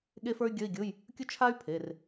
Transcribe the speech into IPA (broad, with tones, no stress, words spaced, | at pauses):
ɠe˥fə˞˥y̯ɡʲə˧˥˧i̯ ɡʲʊ˧˥˧j | kʲʊ˥t͡ʃʰa˥y̯pʰe˩˧˩r